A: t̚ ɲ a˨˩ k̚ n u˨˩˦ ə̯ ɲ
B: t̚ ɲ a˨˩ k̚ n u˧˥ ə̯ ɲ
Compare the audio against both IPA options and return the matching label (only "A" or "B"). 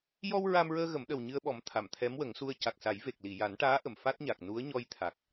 B